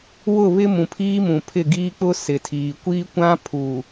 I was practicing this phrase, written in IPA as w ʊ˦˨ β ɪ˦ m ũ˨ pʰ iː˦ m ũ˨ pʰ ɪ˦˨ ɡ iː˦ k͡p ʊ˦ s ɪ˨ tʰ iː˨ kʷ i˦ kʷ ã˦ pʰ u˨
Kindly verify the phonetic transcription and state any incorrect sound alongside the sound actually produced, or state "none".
none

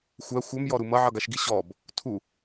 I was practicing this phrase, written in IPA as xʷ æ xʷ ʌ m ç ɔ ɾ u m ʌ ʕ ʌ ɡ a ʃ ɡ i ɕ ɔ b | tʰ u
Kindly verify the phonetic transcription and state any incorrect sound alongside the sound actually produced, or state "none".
ç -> j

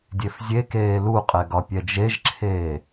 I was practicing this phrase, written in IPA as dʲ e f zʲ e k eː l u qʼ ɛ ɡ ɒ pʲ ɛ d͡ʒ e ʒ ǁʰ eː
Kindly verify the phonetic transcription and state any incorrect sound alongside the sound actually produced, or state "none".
none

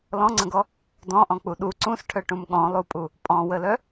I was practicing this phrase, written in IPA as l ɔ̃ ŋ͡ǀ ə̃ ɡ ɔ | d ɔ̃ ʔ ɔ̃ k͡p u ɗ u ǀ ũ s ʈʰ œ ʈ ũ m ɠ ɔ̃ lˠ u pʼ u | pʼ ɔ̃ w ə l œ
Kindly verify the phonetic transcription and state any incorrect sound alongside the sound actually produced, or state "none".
none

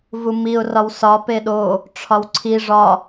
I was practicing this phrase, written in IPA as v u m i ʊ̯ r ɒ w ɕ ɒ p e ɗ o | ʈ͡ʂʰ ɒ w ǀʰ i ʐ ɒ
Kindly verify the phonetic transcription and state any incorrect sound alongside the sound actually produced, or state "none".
ɕ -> s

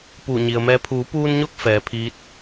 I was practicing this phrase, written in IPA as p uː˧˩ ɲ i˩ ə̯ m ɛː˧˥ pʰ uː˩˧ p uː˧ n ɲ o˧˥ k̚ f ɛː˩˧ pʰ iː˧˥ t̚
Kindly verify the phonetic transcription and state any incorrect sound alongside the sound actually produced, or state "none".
none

